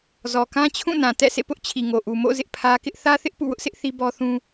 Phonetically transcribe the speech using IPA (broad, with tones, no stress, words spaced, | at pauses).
zɔ˨kã˦ t͡ɕʰũ˦˨nã˨ tɛ̰˦˨sʰḛ˦˨pʊ˦ʔ t͡ɕʰi˨ŋo˨ʔu˨mo̰˦˨ zɪ˦ʔpʰä˦ kɪ˦ʔ θä˦θɪ˦ʔ pṵ˦˨wʊ˦ʔsɪ˦ʔ θi˦bɔ˦θũ˦